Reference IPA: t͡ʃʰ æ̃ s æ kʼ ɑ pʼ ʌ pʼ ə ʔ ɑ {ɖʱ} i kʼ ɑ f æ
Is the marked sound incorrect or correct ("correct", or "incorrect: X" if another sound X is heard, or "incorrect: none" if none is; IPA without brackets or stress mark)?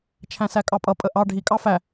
correct